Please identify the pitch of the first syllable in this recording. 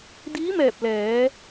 rising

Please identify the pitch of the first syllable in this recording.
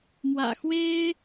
low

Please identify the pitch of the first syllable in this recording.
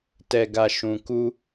low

